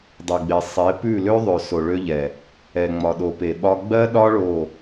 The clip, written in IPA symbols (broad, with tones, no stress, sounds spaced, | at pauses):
dˤ e˨ ɡ͡b e˨ sˤ e˨˦ p ʉ˦˨ l ø˦ ðˤ ø˨ s o˨ ɭ ø˧ ʎ ɛ˨ | ɛ˨ ŋ͡m ɒ˨ ɗ o˨ p e˨ ɓ ɒ˧ ɡ͡b ɜ˦ ɗ ɒ˦ ɭ o˦˨